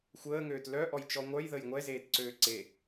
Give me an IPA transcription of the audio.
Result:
xʷ əː ŋ øː t l œ ʔ ɔ j t͡ʃ ɔ ŋʷ œ j ð ə j ŋʷ ɛ z eː t ǀ øː ǀ e

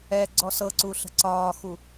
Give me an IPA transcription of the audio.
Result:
ɛ ɡ͡ǀ ɔ s ɤ ǀ u ɬ ə̤ ǀ ɒː x u

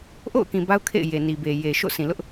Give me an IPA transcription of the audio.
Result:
ʔ o̰˦˨ ʊ̯ k ĩ˨ b a˦ ʊ̯ kʰ ḛ˦˨ ɪ̯ j e˨ n i˨ b e˨ j e˨ ʃ o̰˦˨ sʰ ĩ˨ l ʊ˦ ʔ

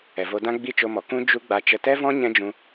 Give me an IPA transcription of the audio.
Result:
ɛ˨ v o˧ d ã˦ ɡ͡b i˦˨ t͡ʃ o˧ m ɔ˨ k ũ˦ d͡ʒ u˧ ɡ͡b a˧ t͡ʃ ə˧ t ɛ˦ v ɔ̃˦ ɲ ɛ̃˦ d͡ʒ ũ˧

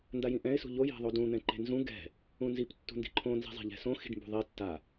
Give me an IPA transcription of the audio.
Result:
n d a j ĩ ʔ ɛ̃ ɪ̯ s ṳ ʎ o j e̤ ðˤ o d ũ n̪ ɛ̃ ǃ e̤ n z ũ ɡ ɛ̤ | ũ n z i p tː ṳ n d i̤ ǃʰ õ n z i̤ zˤ e̤ ʎ ɛ̤ s õ x i̤ ɖ m b ṳ ðˤ i tː a

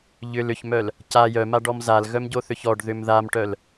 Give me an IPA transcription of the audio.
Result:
ʎ ʏ l ʏ ç m œ l | c a j œ m a ɖ ɔ m z a l ɣ œ m ɟ o θ ʏ ç ɔ ɖ ð ʏ m ð a m ʈ œ l

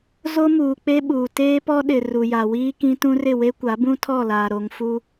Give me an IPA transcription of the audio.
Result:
z o˦ m uː˨ k͡p e˦ ɓ uː˨ t eː˦ p ɔ˦ ɗ ɪ˨ r u˨ j a˨ w iː˦ k ĩ˦ t ũ˦ r ɪ˦˨ w e˦ kʷ a˨˦ b ũ˦ tʰ ɔ˦˨ l aː˨ ɾ o˨ ŋ f u˦

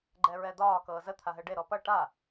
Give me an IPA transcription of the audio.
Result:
ɡ͡ǃ ɛ ɹ ɛ d̪ ɒː k ɤː z ə t̪ʰ a ɦ ɛ ɖ e ɾ ɔ p ʌ ʈ a

